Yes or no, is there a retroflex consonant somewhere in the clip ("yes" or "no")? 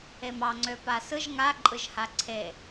no